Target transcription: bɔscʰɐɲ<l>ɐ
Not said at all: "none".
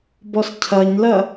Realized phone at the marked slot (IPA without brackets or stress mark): l